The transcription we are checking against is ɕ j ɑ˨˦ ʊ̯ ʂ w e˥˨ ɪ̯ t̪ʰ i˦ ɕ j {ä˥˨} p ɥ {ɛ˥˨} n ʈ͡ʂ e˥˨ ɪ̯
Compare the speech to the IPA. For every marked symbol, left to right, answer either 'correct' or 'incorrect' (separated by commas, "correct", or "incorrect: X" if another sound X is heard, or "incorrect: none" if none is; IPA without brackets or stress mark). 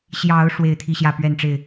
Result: correct, correct